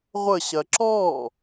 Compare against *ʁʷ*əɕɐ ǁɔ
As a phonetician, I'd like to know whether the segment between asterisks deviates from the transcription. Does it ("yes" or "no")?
no